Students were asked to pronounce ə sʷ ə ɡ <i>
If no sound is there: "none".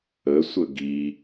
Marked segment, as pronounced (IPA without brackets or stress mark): i